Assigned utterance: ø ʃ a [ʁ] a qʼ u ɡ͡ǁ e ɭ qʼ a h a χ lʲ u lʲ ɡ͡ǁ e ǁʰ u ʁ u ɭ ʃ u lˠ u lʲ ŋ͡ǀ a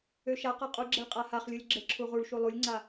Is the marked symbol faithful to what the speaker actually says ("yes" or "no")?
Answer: no